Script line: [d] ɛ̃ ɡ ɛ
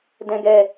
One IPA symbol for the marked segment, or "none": d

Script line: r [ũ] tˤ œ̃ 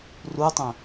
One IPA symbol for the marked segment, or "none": u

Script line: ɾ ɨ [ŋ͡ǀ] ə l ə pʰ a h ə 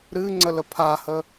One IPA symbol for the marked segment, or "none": ŋ͡ǀ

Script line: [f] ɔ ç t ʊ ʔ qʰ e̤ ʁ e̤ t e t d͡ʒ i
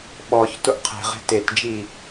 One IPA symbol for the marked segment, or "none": ɓ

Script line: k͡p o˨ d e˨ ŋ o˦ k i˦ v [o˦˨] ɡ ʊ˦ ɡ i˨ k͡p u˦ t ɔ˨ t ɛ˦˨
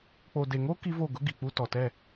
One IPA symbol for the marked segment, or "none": o˦˨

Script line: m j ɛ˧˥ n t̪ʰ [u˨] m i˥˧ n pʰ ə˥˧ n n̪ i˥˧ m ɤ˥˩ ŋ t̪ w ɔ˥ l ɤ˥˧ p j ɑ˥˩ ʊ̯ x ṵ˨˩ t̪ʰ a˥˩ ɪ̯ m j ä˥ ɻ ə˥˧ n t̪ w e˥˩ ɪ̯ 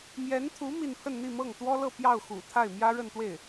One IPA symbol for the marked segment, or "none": u˧˥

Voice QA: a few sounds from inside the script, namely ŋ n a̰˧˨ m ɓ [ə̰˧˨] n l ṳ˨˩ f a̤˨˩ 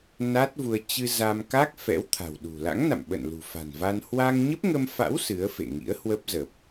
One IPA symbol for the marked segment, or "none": ə̰˧˨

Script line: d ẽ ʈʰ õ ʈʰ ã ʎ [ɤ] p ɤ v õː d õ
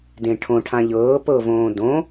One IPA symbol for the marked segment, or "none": ɤː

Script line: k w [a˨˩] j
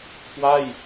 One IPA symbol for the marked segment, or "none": a˥˩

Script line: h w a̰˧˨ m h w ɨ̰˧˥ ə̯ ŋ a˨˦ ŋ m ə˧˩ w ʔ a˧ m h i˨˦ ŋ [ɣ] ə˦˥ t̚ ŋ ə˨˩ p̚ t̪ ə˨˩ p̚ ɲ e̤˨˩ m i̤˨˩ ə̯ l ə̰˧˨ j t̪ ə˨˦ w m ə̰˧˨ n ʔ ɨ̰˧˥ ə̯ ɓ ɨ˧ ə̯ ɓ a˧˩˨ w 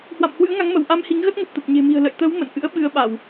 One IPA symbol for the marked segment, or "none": ɣ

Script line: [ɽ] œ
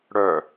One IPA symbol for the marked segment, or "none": ɽ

